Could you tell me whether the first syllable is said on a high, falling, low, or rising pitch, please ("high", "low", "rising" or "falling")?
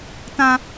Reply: high